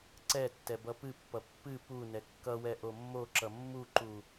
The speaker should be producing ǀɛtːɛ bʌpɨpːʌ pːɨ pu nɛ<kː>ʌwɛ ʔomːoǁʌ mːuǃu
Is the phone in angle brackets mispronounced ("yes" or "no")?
no